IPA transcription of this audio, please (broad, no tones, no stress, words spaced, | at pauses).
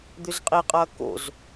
d̪øzqʼiqʼɐː ko̰z